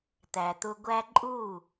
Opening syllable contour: low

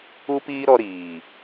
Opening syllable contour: high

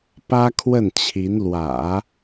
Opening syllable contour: high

